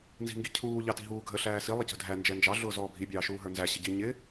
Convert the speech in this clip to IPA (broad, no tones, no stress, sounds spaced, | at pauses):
n z i̤ ŋ ɡ i cʰ uː ʎ ɑ t i̤ ɦ uː ɡʱ ə ɬ æː s i lˠ ə c ə̤ dʱ æ n d͡ʒ ɛ n d͡ʒ ɑ ɮ ʊː z ɔː bʱ i bʲ ɑː ʃ uː ɦ ə˞ n z æ ɕ ɪ ɟ i ɲ ɪ